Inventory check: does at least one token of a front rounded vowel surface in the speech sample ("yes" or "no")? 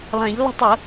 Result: no